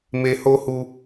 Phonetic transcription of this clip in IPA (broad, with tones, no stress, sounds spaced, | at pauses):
m e˧ h o˦ h u˧